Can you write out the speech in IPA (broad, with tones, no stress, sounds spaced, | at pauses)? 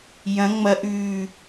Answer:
j ɐ̃˨˦ ŋ͡m ɐ˨˦ ʔ ʉː˨˩